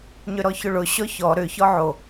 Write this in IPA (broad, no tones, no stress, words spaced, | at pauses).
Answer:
ɲʏɾɔçʊɭʊ ɕɔçɔ ɾʏ çɔʕo